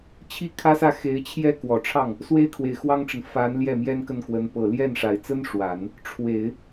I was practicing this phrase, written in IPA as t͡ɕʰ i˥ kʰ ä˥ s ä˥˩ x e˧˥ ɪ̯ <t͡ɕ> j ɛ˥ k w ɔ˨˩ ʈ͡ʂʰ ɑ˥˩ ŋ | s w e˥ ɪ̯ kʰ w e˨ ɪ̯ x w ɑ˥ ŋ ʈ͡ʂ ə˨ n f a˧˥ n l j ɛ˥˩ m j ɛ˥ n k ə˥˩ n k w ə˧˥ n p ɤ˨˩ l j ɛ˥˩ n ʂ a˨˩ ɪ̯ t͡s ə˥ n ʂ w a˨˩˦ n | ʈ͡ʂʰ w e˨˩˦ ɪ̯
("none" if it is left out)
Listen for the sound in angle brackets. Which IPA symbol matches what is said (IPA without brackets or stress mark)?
t͡ɕʰ